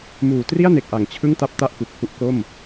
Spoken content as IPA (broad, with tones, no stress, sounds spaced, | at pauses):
m uː˨˩ t r i˥˩ a̯ n e˨˩ k̚ ʔ a˩˦ ŋ t͡ɕʰ ɯ˥˩ ŋ t a˥˩ p̚ t a˥˩ ʔ k u˨˩ k̚ h u˥˩ ʔ k o˥˩ m